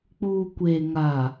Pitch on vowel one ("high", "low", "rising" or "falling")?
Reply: low